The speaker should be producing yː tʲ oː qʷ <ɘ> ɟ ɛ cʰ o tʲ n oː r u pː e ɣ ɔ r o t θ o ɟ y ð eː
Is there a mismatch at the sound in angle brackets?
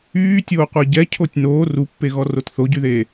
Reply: yes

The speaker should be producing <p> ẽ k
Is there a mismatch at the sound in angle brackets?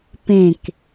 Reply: no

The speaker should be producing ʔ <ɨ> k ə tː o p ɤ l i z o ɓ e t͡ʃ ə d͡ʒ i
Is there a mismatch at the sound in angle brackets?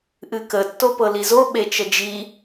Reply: no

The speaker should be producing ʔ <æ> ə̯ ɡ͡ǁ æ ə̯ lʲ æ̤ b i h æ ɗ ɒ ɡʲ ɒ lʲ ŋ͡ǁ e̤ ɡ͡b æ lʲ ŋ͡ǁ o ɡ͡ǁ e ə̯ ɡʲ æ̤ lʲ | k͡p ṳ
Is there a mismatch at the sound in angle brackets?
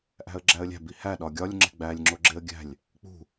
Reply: yes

